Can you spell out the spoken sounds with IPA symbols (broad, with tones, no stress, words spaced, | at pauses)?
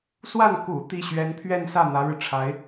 swa˥˩n kṵ˨˩ t̪i˥˩ ɕɥɛ˧˥n pʰɥɛ˥˧nsä˥˩ n̪ä˧˥ɻɻ̩˧ʈ͡ʂʰa˧˥ɪ̯